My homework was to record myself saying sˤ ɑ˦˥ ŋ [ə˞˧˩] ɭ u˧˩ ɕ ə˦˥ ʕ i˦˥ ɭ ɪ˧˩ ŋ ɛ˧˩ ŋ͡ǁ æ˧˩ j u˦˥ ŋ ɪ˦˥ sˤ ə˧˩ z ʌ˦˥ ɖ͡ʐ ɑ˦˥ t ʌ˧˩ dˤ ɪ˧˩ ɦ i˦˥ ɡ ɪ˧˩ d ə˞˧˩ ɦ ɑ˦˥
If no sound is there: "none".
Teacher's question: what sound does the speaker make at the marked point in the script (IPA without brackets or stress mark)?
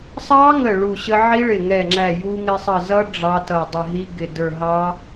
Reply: ə˧˩